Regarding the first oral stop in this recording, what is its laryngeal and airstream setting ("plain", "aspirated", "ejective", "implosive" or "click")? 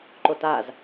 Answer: click